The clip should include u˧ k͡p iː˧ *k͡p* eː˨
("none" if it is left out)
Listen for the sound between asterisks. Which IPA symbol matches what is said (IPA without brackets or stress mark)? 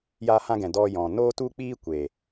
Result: kʷ